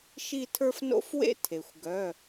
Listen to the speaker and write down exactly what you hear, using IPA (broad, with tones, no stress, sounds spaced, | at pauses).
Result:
ʃ i˥˧ tʰ ə˞˥ f n o̰˥ f w ḛ˥ tʰ e˩ xʷ ɡ œ˩˧˩